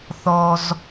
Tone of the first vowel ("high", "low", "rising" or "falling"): low